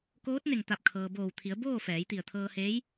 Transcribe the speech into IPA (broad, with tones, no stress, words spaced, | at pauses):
koː˧˥t̚ne˧˩ŋt̪a˧˩p̚kʰɤː˩ boː˧˩wt̪ʰi˩˧ə̯boː˥˨ fɛː˩˧jt̪i˧˩ə̯t̪ʰɤː˧heː˧˥j